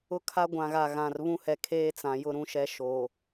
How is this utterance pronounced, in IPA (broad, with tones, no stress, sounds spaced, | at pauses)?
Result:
ʊ˦ kʰ a˦ ɡʷ ã˨ ɣ a˨ ɣ ã˨ r β ũ˦ h ɛ˨ kʰ eː˦ t͡s ã˨ j ʊ˦ ɾ ũ˦ ʃ ɛ˦ ʃ o˨